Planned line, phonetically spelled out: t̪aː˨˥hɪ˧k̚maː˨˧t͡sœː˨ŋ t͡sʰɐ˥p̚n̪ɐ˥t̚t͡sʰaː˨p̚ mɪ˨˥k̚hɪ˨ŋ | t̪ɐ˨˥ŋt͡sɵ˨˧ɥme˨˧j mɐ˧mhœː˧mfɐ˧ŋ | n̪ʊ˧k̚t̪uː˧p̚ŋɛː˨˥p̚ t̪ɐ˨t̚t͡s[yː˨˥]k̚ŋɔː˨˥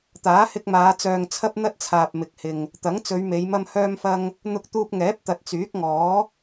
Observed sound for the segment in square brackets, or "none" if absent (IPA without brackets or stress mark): yː˨˥